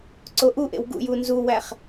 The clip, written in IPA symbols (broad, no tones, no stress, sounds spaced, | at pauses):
ǀ o ʔ u ʔ ḛ w ɡ ṵ j u n z u w æ χ